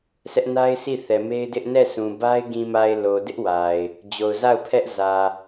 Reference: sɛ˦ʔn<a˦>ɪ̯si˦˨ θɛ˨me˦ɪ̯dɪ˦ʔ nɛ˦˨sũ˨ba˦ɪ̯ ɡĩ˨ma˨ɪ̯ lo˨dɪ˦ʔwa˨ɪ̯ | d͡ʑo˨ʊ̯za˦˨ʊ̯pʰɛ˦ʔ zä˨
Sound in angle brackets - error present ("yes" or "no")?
no